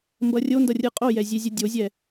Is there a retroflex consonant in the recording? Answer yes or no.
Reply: no